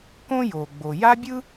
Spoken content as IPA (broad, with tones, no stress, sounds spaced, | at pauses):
k õ˥ j oː˩ ɡ͡b o˩ j a˥ bʲ ɯ˥